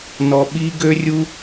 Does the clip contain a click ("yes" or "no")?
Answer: no